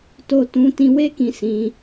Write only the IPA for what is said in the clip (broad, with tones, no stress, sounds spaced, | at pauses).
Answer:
t o˧ t ũ˧ t ĩ˧ w e˦ k ĩ˧ s ĩ˧